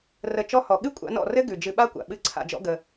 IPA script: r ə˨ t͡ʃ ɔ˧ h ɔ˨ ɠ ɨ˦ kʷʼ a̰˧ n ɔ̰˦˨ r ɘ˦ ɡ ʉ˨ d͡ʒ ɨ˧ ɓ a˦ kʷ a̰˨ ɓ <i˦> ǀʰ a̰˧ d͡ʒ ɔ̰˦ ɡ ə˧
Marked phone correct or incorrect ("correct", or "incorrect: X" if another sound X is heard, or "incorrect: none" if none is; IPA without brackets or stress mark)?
incorrect: ɨ˦